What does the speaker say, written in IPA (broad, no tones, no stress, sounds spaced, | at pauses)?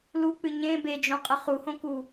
l u k͡p ɨ ɲ ẽ b e d͡ʒ õ qʼ ɨ χ u h õ k u